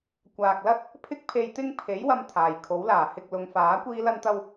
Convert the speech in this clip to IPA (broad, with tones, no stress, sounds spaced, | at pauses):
kʷ aː˨ k̚ l ɐ˥ t̚ | pʰ ɪ˥ k̚ pʰ e˧ j t̪ ɪ˥ ŋ pʰ e˨˥ j w ɐ˧ m t̪ʰ aː˨˩ j kʰ o˨˥ w l aː˨˩ h ɪ˧ k̚ l ʊ˨˧ ŋ f aː˨˥ kʷ iː˥ l ɐ˥ n t̪ ɐ˥ w